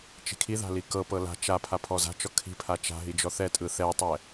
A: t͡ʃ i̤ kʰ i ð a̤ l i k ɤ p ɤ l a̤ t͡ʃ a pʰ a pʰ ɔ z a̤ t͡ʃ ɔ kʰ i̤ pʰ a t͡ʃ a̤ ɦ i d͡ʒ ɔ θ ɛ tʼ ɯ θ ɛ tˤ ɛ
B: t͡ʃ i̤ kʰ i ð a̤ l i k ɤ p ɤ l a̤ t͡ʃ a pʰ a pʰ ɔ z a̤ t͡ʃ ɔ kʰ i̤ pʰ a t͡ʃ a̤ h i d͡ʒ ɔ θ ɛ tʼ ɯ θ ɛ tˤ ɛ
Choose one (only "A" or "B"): A